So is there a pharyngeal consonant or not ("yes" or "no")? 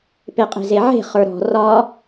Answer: yes